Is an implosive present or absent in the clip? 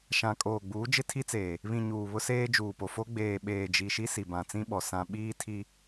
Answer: present